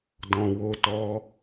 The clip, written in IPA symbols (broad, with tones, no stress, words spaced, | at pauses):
dɔ̃˨wo˨˦tɔ˧